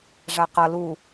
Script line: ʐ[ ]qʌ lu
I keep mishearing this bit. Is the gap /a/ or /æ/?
a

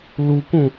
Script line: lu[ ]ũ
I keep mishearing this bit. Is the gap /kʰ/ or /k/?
k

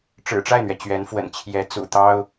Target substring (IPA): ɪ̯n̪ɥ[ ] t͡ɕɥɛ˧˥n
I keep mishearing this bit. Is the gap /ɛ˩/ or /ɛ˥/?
ɛ˩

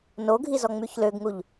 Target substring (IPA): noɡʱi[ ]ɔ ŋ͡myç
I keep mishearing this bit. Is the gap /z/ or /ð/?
z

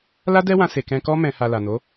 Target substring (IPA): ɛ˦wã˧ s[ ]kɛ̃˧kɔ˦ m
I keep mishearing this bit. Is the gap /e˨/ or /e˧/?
e˨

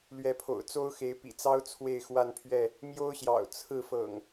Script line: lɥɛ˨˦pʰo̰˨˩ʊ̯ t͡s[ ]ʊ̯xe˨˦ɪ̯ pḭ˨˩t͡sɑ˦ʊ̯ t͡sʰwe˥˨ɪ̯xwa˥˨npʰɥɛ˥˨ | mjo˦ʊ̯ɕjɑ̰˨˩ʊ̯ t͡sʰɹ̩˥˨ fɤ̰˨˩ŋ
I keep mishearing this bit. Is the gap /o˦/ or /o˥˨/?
o˦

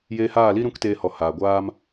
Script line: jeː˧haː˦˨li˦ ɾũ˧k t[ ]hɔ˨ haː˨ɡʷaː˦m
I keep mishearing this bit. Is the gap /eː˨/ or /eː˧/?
eː˧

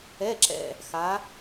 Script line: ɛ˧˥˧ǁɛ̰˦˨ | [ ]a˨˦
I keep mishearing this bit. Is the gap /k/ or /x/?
x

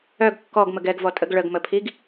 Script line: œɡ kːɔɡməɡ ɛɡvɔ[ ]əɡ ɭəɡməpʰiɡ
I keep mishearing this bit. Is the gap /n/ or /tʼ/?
tʼ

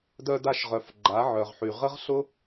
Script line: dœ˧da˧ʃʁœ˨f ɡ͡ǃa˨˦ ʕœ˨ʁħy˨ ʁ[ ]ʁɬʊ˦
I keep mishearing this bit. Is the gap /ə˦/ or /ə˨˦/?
ə˦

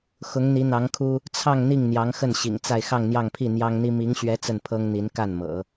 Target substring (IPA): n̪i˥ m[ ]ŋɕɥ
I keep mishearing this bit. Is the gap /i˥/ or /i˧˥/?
i˧˥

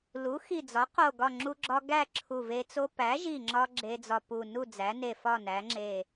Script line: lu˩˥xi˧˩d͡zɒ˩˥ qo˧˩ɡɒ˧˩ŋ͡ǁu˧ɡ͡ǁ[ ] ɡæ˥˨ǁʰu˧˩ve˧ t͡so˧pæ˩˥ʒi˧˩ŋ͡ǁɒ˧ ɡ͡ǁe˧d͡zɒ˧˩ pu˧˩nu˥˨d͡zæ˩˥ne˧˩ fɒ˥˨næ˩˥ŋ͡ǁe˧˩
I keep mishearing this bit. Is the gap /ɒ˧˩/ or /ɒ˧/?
ɒ˧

